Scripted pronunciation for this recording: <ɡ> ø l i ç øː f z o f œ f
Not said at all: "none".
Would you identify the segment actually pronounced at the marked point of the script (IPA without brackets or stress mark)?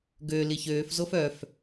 ɡ